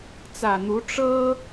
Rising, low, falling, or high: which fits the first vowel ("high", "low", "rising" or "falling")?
low